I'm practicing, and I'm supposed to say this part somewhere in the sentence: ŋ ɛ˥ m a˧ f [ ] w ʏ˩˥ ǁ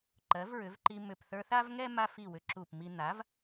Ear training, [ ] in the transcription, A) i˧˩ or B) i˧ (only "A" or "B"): A